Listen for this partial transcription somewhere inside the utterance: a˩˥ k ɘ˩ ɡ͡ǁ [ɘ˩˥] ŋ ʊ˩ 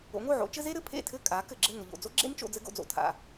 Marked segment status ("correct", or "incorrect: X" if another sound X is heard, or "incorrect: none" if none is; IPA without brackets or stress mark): incorrect: ɘ˥˩